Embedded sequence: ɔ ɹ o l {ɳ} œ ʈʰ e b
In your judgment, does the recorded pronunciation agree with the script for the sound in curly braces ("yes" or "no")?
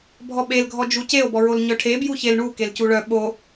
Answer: no